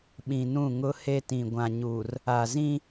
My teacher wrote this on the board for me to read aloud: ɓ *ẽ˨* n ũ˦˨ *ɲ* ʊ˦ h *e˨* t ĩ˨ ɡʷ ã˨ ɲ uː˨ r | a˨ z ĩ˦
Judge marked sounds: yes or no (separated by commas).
no, no, no